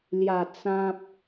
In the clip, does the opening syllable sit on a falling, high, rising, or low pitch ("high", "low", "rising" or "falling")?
low